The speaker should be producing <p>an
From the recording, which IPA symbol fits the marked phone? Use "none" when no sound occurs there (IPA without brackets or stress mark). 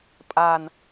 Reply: pʼ